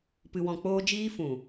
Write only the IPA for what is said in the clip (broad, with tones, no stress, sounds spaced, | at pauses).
p ɨ˧ w ɔ̃˧ k͡p oː˦ d͡ʒ iː˦ f ũ˨